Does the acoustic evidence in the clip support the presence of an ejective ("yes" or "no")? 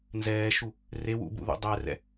no